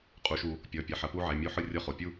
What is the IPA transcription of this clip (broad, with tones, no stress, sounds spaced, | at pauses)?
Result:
qʼ u˩˧˩ ʃ u˨˩˦ | pʲ ɔ˩˧˩ pʲ ɐ˩˧˩ ħ ɐ˨˩˦ p u˧˥˧ ʕ ɛ˩˧˩ mʲ u˧˥˧ ħ ɯ˥˧ rʲ ɔ˥˧ χ o˩˧˩ pʲ u˥˧